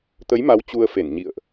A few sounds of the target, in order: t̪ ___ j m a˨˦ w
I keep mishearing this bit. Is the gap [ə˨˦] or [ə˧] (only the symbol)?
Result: ə˨˦